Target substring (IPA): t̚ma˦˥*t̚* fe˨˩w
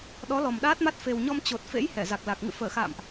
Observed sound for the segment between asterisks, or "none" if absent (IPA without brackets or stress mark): t̚